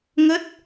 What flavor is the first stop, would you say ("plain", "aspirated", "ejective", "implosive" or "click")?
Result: plain